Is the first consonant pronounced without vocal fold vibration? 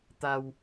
yes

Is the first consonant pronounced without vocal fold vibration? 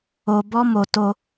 no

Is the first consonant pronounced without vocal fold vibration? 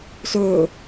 yes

